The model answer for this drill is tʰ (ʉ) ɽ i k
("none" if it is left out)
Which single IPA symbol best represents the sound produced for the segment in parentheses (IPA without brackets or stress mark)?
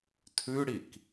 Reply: ʉ